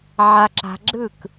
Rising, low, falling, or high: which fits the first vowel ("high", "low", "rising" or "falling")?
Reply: low